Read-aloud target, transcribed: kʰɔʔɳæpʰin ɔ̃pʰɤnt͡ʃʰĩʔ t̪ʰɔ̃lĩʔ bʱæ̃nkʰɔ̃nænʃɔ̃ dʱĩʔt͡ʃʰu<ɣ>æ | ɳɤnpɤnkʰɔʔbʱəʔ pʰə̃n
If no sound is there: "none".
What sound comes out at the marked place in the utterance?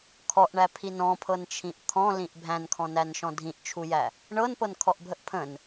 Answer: j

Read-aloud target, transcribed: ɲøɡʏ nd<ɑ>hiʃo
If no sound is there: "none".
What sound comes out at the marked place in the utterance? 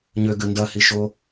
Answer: ɐ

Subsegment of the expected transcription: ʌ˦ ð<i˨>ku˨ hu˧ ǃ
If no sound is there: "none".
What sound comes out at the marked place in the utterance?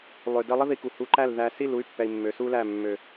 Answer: i˧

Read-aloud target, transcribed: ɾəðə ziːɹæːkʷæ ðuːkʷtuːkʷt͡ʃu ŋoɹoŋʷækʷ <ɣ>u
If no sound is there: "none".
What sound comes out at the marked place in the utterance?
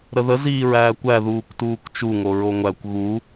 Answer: ɣ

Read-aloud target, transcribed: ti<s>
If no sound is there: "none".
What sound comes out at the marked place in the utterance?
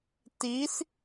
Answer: s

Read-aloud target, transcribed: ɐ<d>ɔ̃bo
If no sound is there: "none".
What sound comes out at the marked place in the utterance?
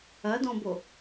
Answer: d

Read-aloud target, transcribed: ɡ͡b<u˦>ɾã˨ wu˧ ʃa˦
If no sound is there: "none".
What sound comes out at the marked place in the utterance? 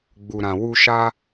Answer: u˨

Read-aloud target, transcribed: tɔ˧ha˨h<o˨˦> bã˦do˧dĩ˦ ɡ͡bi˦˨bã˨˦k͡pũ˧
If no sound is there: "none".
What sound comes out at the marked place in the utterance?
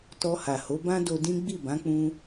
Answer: o˨˦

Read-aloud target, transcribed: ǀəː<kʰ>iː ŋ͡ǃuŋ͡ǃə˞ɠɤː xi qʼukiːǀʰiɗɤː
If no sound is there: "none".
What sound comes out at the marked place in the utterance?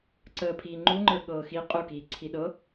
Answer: pʰ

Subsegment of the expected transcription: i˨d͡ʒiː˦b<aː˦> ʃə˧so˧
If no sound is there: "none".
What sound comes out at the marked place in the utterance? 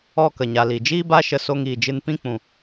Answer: a˦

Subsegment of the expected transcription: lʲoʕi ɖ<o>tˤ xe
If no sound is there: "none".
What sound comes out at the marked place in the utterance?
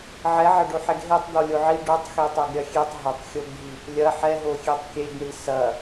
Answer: o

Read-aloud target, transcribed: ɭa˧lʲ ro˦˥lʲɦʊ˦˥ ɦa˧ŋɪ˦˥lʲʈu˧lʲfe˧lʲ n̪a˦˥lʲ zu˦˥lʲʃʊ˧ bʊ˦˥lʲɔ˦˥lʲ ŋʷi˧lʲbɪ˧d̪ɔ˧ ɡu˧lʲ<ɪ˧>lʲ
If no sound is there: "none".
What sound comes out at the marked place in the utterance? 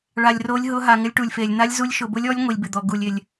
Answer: ɪ˧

